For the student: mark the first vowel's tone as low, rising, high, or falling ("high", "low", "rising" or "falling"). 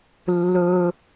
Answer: low